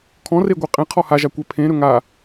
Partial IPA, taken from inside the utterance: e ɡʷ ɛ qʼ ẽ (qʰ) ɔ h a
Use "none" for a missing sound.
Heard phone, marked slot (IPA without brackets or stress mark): qʰ